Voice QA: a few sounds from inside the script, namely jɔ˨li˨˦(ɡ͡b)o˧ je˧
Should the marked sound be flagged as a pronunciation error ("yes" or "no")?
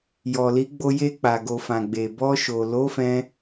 no